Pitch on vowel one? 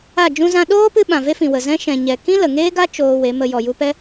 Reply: falling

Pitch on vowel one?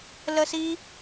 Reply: high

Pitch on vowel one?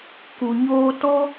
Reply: low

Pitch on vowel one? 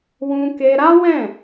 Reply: high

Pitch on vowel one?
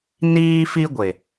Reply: high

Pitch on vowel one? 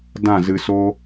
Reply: falling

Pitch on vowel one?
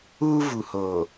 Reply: high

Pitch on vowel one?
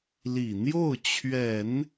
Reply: low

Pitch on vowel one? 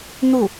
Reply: falling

